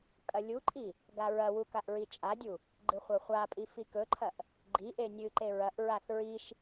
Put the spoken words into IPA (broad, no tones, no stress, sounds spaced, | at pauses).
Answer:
kʼ ɐ lʲ u ǃʼ i | ɡ a ɹ ɐ w u k a ʔ ɹ i t͡ʃʼ a dʲ u | ɡ͡ǃ ɨ χʷ ɐ χʷ a pʼ i f i k ɵ ǃʰ ɐ ʔ | ɡ͡ǃ i ʔ e nʲ ɨ ǃ e ɹ ɐ ʔ ɹ a θ ɹ i ʃ